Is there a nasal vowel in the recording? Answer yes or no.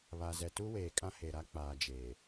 yes